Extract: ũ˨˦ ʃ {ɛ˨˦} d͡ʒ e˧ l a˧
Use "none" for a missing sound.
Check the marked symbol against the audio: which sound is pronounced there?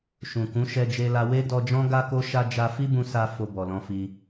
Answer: ɛ˧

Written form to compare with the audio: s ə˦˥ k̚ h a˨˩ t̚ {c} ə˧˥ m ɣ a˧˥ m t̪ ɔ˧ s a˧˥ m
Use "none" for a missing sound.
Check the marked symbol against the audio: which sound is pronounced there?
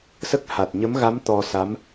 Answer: ɲ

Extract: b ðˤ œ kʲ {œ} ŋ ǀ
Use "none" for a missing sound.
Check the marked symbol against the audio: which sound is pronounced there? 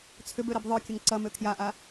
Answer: ə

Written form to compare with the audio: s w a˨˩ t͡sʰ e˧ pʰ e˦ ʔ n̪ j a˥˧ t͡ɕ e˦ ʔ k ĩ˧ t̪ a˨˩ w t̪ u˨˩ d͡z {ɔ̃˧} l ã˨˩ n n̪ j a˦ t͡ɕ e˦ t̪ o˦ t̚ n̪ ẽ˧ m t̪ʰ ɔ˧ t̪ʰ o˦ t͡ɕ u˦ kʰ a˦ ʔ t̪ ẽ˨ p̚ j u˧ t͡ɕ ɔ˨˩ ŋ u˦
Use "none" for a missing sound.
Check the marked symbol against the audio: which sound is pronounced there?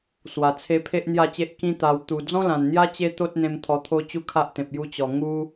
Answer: ɔ̃˦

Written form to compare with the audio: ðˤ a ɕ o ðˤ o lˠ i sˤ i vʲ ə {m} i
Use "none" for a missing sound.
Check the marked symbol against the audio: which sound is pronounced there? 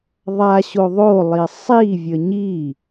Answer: ɲ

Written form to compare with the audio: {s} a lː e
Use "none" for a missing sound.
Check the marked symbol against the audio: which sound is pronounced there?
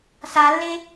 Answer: s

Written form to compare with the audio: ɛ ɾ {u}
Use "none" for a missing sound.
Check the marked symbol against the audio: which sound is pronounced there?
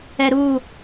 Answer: u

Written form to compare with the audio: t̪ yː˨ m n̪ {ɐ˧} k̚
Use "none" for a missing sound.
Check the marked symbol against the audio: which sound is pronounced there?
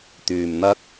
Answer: ɐ˧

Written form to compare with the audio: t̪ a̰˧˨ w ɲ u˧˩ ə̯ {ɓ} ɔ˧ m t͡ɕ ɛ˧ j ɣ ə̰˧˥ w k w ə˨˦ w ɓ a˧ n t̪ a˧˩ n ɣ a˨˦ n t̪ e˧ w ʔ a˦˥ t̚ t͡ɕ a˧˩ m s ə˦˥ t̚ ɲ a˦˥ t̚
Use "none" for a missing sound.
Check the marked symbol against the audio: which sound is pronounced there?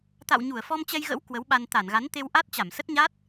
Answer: f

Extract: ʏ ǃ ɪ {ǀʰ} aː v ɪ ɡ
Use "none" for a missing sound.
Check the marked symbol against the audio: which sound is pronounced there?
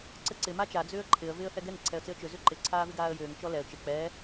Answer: ǀʰ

